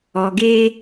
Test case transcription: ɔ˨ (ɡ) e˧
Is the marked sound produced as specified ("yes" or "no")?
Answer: yes